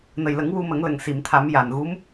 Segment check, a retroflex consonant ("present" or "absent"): absent